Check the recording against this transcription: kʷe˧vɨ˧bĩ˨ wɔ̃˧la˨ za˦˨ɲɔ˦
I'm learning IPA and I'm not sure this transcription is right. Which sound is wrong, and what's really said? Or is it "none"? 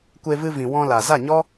b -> v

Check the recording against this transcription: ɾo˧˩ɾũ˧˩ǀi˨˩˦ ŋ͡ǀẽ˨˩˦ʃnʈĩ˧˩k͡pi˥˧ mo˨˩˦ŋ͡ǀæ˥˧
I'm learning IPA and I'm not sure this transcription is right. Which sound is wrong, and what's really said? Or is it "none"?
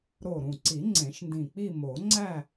ʈ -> d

